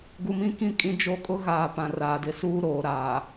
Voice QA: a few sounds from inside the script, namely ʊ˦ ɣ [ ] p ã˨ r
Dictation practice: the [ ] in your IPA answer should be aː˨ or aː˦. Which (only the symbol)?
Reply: aː˨